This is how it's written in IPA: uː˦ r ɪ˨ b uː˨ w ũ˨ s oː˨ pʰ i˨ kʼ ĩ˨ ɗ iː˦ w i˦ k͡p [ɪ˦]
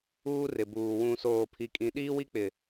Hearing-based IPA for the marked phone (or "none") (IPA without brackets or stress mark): ɪ˨